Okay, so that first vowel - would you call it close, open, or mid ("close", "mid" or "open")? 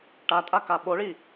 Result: open